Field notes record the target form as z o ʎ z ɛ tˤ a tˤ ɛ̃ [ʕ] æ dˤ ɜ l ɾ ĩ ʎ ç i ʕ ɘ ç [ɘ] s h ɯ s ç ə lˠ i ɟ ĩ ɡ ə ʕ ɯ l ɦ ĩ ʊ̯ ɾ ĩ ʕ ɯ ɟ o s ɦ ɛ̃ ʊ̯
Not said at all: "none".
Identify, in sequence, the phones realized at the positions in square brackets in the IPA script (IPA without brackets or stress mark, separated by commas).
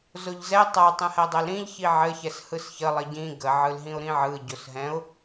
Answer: h, ɛ